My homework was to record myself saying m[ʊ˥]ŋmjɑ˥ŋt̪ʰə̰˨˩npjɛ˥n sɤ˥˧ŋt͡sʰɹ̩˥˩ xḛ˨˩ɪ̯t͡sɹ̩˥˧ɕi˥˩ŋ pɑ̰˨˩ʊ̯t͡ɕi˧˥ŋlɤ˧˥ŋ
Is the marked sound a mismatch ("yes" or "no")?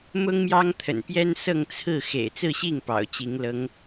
no